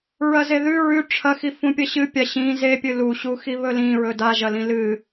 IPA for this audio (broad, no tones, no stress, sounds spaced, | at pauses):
ɹ ɐ z e ð ʉ ɹ ʉ ʈ͡ʂʰ ɐ x i f ũ pʲ ɐ ɕ ɨ pʲ a ɕ ĩ z e pʲ ɨ l u ɕ u x i β ɵ l ĩ ɹ ɵ d a ʒ ɐ l ĩ l ɨ